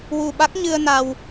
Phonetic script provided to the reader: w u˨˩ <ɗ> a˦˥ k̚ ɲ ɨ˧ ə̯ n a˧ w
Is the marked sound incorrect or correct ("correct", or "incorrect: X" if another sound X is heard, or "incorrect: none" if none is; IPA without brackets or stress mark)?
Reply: incorrect: ɓ